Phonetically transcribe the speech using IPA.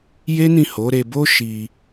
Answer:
j e˦ n ĩ˦˨ h o˨˦ ɾ e˧ b o˦ ʃ i˧

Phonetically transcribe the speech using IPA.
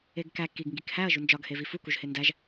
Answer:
e ɡ k æ k i ɡ ŋ ɡ i k h æ ɐ̯ ʒ u n d͡ʒ ɒ ɡ h e v i f u k u ʒ h e n d æ ʒ

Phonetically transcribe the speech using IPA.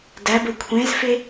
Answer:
d æ b ə kʷʰ ẽ z f e

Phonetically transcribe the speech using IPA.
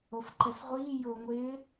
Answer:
o f ǃ ɛ s ʁʷ iː j ʊː ŋʷ ɪː

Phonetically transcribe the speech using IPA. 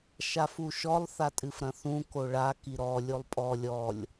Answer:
ʃ a f u ʃ ɔ lˠ θ a tʼ ɨ f ɾ ɐ̃ θ ũ k o ɭ a k i ɾ ɔ lʲ o lˠ pʼ ɔ lʲ ɔ lʲ

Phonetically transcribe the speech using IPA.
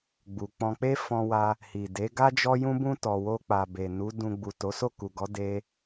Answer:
ɡ͡b u˨ k͡p ɔ̃˧ k͡p e˦ f ɔ̃˧ w a˧ | h i˨ d e˨˦ ɡ a˦ d͡ʒ ɔ˦ j ũ˦ b ũ˦ t ɔ˧ w o˦ k͡p a˧ b e˨ n u˨˦ d ũ˧ ɡ͡b u˨ t o˨˦ s o˦˨ k u˨ ɡ ɔ˨˦ d e˦

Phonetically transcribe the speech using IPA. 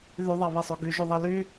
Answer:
ð y ðˤ ɑ β e sˤ o ɡ y ʒ u ðˤ e l y

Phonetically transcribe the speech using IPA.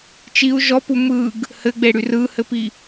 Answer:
t͡ʃ i u̯ ʒ ɔ p u m ɯ ɡ | h ɘ ɡ͡b e ɽ y r ɯ h ɘ p i

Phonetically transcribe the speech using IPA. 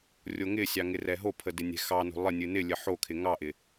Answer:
rʲ o ŋ ɪ sʲ ɑ ŋ ɪ r ɛ ɦ o pʰ ə d ɪ nʲ ɛ̤ x ɑ n o̤ lˠ ɪ nʲ ɨ n ɪ lʲ ə ħ o kʰ ɪ ŋ ɑ ʔ ɪ

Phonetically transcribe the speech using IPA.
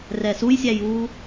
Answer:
r ɛ s u j sʲ æ j uː

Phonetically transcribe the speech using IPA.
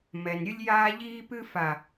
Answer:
m ɛ˨ n ɾʲ ɨ˦ lʲ j aː˦ ʎ iː˦ p ɨ˦ f a˨

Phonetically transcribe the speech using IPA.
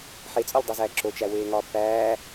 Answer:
ħ e t͡sʼ ɒ lʲ dˤ i z æː ǁ o t͡ʃ æ w eː ŋ ɒː b p æː

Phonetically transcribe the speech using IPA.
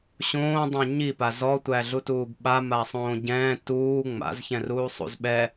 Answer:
ɕ õː dˤ ɛ̃ ɲ i p a z ɔ tʷ æ ɮ u t uː b ɓ a m aː sˤ õː ɟ ɛ̃ː t uː ŋ͡m a̰ z ç ɛ̃ r uː sˤ ṵ z ɓ ɛ

